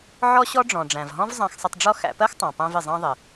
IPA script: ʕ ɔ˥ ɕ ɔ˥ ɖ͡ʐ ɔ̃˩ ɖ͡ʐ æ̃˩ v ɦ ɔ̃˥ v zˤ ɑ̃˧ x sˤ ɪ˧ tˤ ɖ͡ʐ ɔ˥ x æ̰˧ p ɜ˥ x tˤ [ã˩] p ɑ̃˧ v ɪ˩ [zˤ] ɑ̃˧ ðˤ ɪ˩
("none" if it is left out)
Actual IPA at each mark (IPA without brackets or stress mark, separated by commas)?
ɑ̃˩, zˤ